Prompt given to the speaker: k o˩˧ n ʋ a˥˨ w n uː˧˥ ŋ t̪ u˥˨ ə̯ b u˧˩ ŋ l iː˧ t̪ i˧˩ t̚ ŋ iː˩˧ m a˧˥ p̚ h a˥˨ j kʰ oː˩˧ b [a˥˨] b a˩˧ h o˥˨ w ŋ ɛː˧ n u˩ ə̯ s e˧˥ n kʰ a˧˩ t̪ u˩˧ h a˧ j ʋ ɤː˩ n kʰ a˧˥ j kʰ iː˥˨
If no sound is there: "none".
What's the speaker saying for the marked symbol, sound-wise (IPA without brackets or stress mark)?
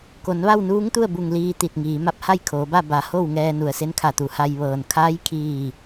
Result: a˥˨